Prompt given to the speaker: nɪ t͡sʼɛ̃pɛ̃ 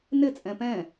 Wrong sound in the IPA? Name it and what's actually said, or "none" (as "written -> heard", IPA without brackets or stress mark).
none